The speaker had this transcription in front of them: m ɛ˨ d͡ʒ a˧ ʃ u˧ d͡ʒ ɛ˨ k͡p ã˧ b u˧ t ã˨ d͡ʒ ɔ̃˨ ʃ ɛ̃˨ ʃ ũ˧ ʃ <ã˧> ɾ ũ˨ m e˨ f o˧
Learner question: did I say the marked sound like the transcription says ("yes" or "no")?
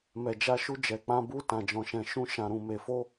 no